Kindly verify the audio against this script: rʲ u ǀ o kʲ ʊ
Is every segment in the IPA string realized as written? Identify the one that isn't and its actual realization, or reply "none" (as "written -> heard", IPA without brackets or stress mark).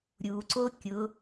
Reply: rʲ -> ɾʲ